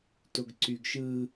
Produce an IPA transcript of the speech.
t o ɡ ǀ y ɡ ʃ ɯ

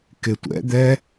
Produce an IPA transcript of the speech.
k ɪ tʷ ɛ̰ d̪ ɛ

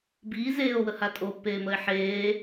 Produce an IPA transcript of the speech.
b iː z eː o̯ w ə h a tʼ o pː eː m ə e̯ ħ eː

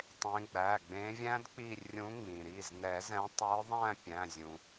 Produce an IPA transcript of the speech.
tˤ ẽ˨˦ ɡ͡b æ˩˧˩ ɡ͡b ẽ˨˦ vʲ æ̃˦˥ d k͡p i˦˨ rʲ ũ˨˦ ŋ͡m ĩ˩ ɾ i˩˧˩ z n ɛ˨˩˦ z ɛ̃˨˦ tˤ ə˞˨˦ ðˤ æ̃˦˨ pʲ æ̃˩˧˩ zʲ ũ˩

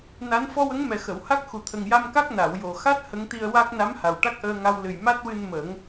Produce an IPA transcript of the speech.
n a˧˥ n f ɔ˧ w ə˧˥ ŋ m ɛ˨˩ x ə˨˩˨ w h a˦˥ k̚ x u˨˩ t̪ʰ ə˨˩ ŋ j a˧ m k a˦˥ k̚ n a˨˩˨ w j o˨˩ x a˦˥ t̚ h ə˧˥ ŋ t̪ i˧ ə̯ w a˦˥ k̚ n a˧˥ m h a˨˩ w ʈ a˦˥ k̚ ʔ əː˧ ŋ a˧ w l ɨ˨˩ j m a˦˥ t̚ w ɨ˧ n m ə˨˩˦ ŋ

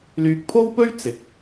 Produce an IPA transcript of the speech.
l yː˧ k̚ pʰ o˥ w p ɵ˥ ɥ t͡s ɪ˨ k̚

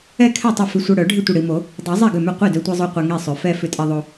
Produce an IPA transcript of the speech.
ɛ˥˩ kʰ ɛ˥˩ tˤ ɪ˥˩ f ʏ˧ sʷ œ˧ ɽ œ˨˩˦ ɖʱ ɪ˥˩ tʷ ɪ˥˩ ɽ i˧ m o˨˩˦ | dˤ i˨˩˦ zˤ ɛ˥˩ ɡ ʏ˥˩ m ʏ˥˩ qʷ i˥˩ d œ˧ tʷ e˧ zˤ o˧ qʷ ɛ˧ ŋ i˥˩ sˤ ʏ˨˩˦ f ɛ˧ f ʏ˧ tʼ e˧ ðˤ o˧

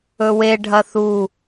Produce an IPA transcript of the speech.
ɵ w e ɖʱ ɐ θ u

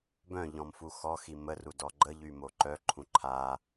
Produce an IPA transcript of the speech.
b œ̃ ʎ ɔ̃ m f u x ɔ x i m ə r u d ɔ ɡ͡ǃ ə ʎ y m o ǃ œ ǃʰ ũ ǃʰ a

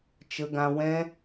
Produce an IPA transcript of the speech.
t͡ʃ ə˧ ɡ ã˧ w ɛ̃˦

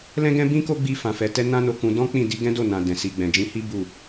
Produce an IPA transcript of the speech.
l ɛ̃˦ ɡ ɛ̃˦ b ĩ˦ k o˦ ɡ͡b i˦ f ã˧ f ɛ˧ t ɛ˦ n ã˦ n o˧ k ũ˧ d ɔ̃˦ k͡p ĩ˦˨ d i˧ ɡ ɛ̃˦ d o˦˨ n ã˨ d ɛ̃˨ s i˨ ɡ͡b ɛ̃˨ d͡ʒ ĩ˧ h i˦ b u˦˨

